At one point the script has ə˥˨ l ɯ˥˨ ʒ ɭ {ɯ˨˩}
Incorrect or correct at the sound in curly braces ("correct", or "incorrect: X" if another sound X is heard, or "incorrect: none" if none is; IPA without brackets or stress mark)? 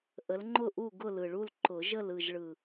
correct